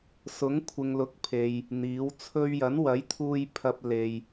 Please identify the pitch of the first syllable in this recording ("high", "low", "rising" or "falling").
rising